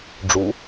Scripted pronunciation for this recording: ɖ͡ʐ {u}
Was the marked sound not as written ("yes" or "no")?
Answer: no